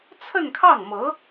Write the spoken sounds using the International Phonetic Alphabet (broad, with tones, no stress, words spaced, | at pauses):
t͡sʰə˥˧nkʰɑ˥˩ŋmɤ˧˥